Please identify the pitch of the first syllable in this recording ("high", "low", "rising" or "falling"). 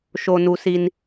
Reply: low